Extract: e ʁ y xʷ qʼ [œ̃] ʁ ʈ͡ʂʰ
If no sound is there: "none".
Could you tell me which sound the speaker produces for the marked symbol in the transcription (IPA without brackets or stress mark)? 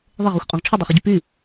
œ̃